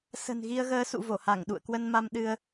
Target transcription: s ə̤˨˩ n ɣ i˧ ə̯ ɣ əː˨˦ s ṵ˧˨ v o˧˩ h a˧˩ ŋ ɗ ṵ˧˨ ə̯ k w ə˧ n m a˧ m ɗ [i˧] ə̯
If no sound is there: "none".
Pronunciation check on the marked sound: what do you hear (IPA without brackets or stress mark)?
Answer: ɨ˧